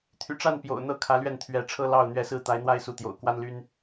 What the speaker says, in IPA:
t̪ʰ y̰˨˩ ʈ͡ʂ a˥˩ n p j o̰˨˩ ʊ̯ n̪ ɤ˥ kʰ ä˧˥ l ɥ ɛ˥˩ n t̪ʰ ɥ ɛ˧˥ ʈ͡ʂʰ ɤ˥ l ɑ˥˩ ʊ̯ n̪ ɥ ɛ˧˥ s ɹ̩˥˩ t̪ a˧˥ ɪ̯ n̪ w a˥˩ ɪ̯ s u˧˥ t̪ j o̰˨˩ ʊ̯ k w a˥ n l y˥ n

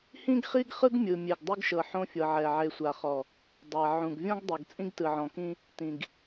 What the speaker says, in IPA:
h ĩ˦ ɡ χ i˦ ɡ χ ɯ˦ ɡ mʲ ɯ˨ mʲ e˨ ɡ dˤ u˦ ɡ ʃ ɤ˨ ħ õ˦ fʲ ɤ˨ ʕ ɛ˨ ʕ e˨ sʷ a˨ χ ɔ˨ | dˤ a˨ ʕ ũ˨ ɡ vʲ ɔ̃˦ ɡ dˤ o˨ ɡ t͡sʼ ĩ˦ ɡ t ɯ˨ ʕ ɔ̃˨ k ĩ˦ | t ĩ˨ ɡ

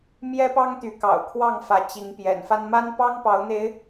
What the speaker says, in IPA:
m j ɛ˦ p ɑ˦ ŋ t̪ y˨˦ k ɑ̰˨˩ ʊ̯ kʰ w ɑ˥˨ ŋ f ä˨˦ t͡ɕ i˨˦ ŋ p j ɛ̰˨˩ n f a˦ n m a˦ n p ɑ˦ ŋ p ɑ˨˦ ʊ̯ n̪ e˨˦ ɪ̯

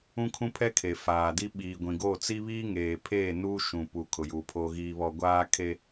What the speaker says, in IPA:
ũ˦ kʰ ũ˦ pʰ ɛ˦ kʰ e˨ f aː˨ d i˦ ɓ iː˨ ɡʷ ĩ˨ ɡ o˦˨ t͡s i˦ β iː˦ ŋ eː˨ pʰ eː˦˨ n uː˦ ʃ ũ˨ p u˨ kʰ ʊ˨ j uː˨ pʰ oː˨ ɣ iː˨ β ɔ˨ ɡʷ aː˦ kʰ e˦

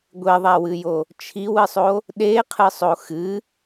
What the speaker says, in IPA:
ɡʷ e ðˤ a w ɨ j o | t͡ʃʰ i w ɨ sˤ o | ɗ e qʰ ɨ sˤ o x ɨ

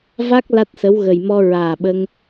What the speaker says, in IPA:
v a˦˥ k̚ l a˦˥ t̚ s ə˧˥ w ɣ ə˨˩ j m ɔ˧ ɹ aː˨˩ ɓ ə˧ ŋ

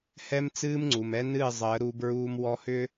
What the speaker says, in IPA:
h ɛ˦ m t͡s ɨː˦ m ŋ͡ǀ u˨ m ɛ˦ n ɨː˦˨ zˤ əː˨˦ ɾ u˦ b ɹ uː˦ m w ɔ˦ h ʏː˦

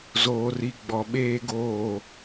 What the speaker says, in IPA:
z oː˨ r i˨ ɡ͡b ɔ˨ ɓ eː˦ ɡ oː˦˨

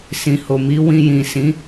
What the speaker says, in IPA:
s ĩ˨ h o˨ m i˨˦ w ĩ˧ j ĩ˨ s ĩ˨˦

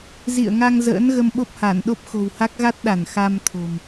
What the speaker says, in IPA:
z ḭ˧˨ ə̯ ŋ a˧ ŋ z ə̰ː˧˥ n ɣ ə˧ m ɓ o˦˥ p̚ h a˧˩ n ɗ o˦˥ p̚ x o̤˨˩ w h a˦˥ k̚ ɣ a˦˥ t̚ ɗ a˧˩ n x a˧ m t̪ʰ o̤˨˩ m

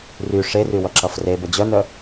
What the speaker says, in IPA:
r y ʂ e r y w ʌ ǁ ʌ f r e b ə d͡ʑ œ n œ

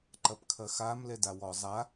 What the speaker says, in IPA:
ǃ ɐ p kʰ ɐ x a m l ɛ d a w ɔ zˤ a

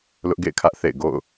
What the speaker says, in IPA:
l ʊ˦ ʔ ɡ ḛ˦˨ ɪ̯ kʰ ä˦ ʔ θ ḛ˦˨ ɪ̯ ɡ o̰˦˨ ʊ̯

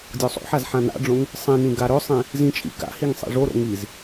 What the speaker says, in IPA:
dʲ o sˤ o̰ ħ a z ħ ã n a̰ ɖ͡ʐ õ ŋ | sˤ ĩ n ĩ ɡ a ɾ ɵ sˤ ĩ | z ĩ t͡ʃʼ ḭ k a̰ h i ŋ sˤ ḭ ʐ o ɾ o̰ ŋ i z

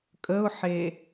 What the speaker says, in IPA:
kʼ ə ʊ̯ ħ e

